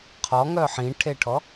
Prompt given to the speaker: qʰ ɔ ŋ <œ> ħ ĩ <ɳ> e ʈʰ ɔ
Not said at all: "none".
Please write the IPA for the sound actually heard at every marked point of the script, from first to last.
œ, ʈʰ

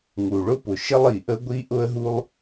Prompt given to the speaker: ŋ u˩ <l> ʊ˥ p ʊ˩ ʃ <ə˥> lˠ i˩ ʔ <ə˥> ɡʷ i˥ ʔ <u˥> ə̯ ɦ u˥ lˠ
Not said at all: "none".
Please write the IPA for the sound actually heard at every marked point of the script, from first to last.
ɭ, ə˥, ə˥, ʊ˥

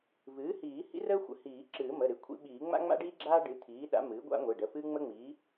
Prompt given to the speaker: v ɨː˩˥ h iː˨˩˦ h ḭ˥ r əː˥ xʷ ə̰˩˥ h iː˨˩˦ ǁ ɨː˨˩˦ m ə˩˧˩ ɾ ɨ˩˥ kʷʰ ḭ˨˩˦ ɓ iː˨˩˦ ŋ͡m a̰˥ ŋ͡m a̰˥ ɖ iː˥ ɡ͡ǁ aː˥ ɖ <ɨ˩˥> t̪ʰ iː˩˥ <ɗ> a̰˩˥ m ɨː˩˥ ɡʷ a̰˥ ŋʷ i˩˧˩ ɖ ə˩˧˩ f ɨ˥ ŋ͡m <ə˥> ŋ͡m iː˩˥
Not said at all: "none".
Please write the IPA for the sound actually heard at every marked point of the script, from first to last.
ɨ˩˥, ɗ, ə˥

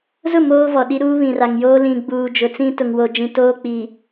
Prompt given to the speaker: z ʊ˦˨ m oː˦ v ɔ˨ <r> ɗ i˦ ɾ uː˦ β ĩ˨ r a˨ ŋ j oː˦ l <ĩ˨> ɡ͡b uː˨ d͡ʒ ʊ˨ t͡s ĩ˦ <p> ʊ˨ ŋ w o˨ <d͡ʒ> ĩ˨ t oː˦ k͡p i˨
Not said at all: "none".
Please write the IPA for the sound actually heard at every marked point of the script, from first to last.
none, ĩ˨, t, d͡ʒ

